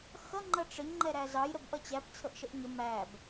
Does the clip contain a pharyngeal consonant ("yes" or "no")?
no